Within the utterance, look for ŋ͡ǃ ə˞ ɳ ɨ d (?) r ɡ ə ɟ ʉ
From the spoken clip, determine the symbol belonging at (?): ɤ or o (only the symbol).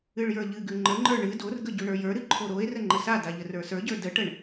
o